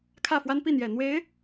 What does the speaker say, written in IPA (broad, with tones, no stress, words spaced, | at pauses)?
kʰä˥˩fwa˥npi˥˩n̪jɛ˨˩ n̪we˧˥ɪ̯